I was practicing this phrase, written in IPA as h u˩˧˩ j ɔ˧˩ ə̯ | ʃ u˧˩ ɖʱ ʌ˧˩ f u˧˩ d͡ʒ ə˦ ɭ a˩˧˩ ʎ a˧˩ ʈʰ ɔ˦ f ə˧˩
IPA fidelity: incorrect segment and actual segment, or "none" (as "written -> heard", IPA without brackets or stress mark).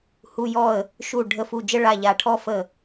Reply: ʌ˧˩ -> ə˧˩